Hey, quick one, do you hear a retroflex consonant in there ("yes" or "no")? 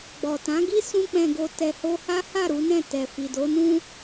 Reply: no